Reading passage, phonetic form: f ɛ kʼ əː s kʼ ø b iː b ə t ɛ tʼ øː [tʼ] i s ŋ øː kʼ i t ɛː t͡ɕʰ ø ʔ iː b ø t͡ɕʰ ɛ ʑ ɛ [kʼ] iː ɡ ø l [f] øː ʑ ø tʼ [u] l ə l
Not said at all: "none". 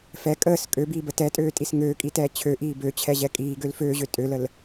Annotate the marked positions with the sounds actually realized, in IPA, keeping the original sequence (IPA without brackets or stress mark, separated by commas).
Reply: tʼ, kʼ, f, ø